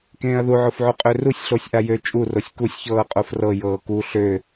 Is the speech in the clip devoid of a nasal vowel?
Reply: no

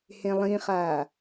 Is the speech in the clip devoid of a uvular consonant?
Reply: no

